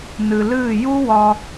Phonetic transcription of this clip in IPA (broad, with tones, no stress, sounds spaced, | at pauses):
n ɨ˨ l ɨː˦˨ j u˦ w ɒ˧